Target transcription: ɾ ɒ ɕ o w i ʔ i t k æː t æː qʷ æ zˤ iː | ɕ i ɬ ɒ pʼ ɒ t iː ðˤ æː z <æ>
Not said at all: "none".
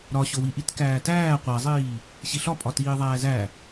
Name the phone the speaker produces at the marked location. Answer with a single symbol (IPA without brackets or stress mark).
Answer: æ